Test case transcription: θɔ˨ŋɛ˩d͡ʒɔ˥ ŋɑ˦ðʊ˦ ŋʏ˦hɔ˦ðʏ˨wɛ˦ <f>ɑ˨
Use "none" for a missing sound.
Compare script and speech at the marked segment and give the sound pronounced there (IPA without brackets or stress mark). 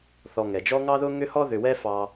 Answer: f